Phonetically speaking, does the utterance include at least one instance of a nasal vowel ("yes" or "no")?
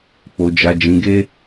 yes